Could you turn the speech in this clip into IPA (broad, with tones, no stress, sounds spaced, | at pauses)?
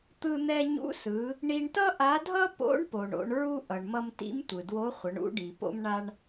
t̪ ɯ˧ n̪ ɛ˧ ɲ ṵ˧˥ s ɯ˩˧ | ɳ i˧ ɳ t ʌ˥ ʔ a˧˥ dʱ ʌ˥ p o̰˧˥ ɳ p o˩ ɳ o̰˩˧ ɳ ɹ u˥ ʔ ʌ˩ ɳ m ʌ˧ m t ḭ˧˥ m tʷ ɯ˩ d w o˧˥ χʷ ʌ˩˧ ɳ ṵ˧˥ ɖ i˩ p o̰˥ m ɳ a˥ ɳ